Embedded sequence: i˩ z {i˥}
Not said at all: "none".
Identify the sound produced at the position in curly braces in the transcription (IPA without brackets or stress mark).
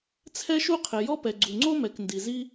i˥